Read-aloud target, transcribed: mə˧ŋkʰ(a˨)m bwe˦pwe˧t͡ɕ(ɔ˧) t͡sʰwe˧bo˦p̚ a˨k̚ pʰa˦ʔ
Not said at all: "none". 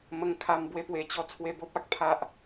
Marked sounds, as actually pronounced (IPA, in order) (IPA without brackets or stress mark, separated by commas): a˧, ɔ˦